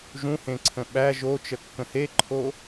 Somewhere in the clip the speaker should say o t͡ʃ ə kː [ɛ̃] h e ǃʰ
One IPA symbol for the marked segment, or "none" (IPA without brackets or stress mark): ə̃